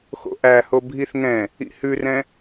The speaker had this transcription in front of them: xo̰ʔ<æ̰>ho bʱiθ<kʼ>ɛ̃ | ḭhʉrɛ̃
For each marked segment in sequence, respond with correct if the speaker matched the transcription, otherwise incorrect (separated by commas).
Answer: incorrect, incorrect